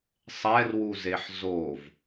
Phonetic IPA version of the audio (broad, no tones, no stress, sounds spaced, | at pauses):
sˤ ɛ r w u z e ħ z o v